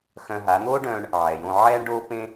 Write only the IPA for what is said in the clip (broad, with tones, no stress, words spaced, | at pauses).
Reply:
xœ̃˧ɦa˩˥ n̪o˥ɖœ̃ː˧ɳ | ʕɛ˩jõ˧ ʕɛː˥ɳɖoː˥pẽ˥